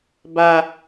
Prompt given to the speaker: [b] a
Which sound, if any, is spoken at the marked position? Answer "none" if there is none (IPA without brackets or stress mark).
b